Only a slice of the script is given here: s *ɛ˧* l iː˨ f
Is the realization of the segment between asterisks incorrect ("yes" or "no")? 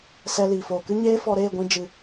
no